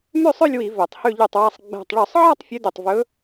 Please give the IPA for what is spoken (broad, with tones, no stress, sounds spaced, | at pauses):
m ʉ˥˧ sˤ ø˥˧ lʲ w i˧˩˧ v ø˧˩˧ tˤ h ʉ˥˧ ʎ ʉ˥˩ tˤ w æ˥˧ sˤ ɡ͡b æ̤˧˩ tˤ ɭ ɵ˧˩˧ sˤ ʕ ɑ˥˧ tˤ fʲ ʉ˧˥ d ʉ˧˩ tˤ v ɵ˧˥